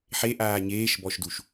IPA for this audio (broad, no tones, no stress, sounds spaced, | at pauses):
ħ e ʔ aː ɲ eː ʃ b ɔ ʃ d u ʃ